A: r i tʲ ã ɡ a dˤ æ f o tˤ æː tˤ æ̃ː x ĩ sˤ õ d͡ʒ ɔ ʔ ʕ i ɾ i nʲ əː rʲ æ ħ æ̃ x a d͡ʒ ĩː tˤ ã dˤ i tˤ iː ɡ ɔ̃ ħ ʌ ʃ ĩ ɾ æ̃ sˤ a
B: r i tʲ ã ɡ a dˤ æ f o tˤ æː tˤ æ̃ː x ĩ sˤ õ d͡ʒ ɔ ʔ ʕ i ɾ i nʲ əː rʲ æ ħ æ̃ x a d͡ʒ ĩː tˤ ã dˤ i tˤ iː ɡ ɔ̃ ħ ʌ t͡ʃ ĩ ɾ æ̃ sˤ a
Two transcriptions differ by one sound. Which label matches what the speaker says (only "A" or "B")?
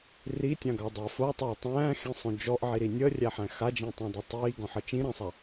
B